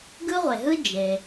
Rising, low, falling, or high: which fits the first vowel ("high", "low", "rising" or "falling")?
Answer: high